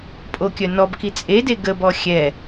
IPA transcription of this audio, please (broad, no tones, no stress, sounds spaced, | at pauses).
pʼ o kʲ œ n ɔ b k i t͡sʼ e d e ɡ ə b ɔ xʲ ɛ